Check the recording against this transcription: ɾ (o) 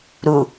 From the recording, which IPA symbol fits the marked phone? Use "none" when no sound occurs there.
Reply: u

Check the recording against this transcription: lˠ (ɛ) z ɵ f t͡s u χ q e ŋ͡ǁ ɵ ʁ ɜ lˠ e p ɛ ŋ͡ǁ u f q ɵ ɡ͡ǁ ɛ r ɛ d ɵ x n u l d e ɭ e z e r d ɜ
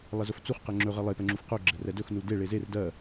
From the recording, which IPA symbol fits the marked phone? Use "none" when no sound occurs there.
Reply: ɛ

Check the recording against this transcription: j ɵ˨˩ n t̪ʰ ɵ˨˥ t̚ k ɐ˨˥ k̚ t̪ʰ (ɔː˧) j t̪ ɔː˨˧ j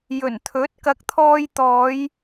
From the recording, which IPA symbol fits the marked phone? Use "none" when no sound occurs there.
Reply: ɔː˧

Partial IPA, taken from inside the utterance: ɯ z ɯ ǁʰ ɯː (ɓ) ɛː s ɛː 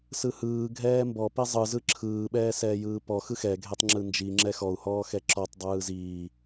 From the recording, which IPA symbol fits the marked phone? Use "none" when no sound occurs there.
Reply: ɓ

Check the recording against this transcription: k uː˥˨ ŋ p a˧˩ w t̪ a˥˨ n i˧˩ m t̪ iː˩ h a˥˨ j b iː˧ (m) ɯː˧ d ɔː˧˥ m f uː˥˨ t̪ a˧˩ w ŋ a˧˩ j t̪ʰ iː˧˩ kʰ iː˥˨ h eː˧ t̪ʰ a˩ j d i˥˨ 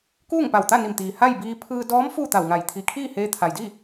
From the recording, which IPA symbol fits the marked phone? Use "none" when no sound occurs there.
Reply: pʰ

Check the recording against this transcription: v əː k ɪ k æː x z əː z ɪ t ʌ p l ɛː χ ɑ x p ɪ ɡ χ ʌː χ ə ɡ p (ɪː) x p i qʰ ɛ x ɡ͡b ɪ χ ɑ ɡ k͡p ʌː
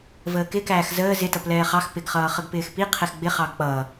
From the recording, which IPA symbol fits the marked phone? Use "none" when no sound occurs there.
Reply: ɪː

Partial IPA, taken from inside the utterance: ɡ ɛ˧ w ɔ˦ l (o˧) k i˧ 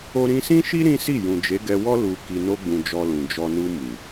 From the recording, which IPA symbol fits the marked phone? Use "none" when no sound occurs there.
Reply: u˧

